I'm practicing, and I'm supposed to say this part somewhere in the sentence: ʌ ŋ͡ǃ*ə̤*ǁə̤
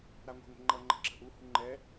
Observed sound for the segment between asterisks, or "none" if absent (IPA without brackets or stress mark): ə̤